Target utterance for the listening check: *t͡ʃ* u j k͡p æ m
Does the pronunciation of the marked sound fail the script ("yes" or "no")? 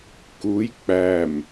yes